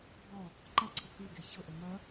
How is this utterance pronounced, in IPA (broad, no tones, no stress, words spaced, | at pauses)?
bɔ | ǃʌǀʰə kɨɡe çɤʔə mɐ